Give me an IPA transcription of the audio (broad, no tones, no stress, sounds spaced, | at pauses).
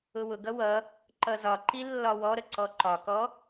ʊ w ʊ ɡ ʌ w ʌ | ǃ ʌ z ɒ ǃ i lː ɒ w ɔ ɾ ə ǀ ɔ ǃ ɒ k ɔ